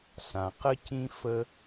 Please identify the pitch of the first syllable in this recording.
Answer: low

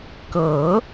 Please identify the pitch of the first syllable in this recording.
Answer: rising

